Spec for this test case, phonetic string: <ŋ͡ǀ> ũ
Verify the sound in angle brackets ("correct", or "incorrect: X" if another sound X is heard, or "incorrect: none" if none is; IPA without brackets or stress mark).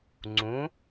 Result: correct